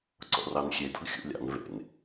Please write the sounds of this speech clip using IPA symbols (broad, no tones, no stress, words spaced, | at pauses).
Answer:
ǀɔ̰rɑnxʲe dɔɡxʲṵlʲɑ̰n vḛn